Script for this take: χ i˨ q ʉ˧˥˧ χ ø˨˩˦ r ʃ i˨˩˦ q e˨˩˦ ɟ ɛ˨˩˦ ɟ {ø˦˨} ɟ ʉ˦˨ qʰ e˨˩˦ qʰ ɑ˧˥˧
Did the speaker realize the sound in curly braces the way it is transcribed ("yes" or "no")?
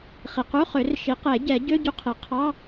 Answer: no